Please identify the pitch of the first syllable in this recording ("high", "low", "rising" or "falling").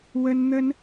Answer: high